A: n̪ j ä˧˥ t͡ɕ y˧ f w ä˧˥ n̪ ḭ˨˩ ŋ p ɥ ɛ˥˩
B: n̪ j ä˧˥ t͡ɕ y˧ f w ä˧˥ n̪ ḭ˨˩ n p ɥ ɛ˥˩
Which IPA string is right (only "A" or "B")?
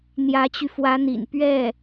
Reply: B